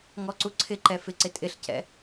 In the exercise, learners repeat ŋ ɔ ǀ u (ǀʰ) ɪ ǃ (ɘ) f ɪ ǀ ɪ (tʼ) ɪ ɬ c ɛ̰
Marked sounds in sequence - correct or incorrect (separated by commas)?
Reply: correct, incorrect, correct